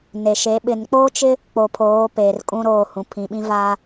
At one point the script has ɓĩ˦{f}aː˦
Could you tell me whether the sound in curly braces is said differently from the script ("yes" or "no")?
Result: yes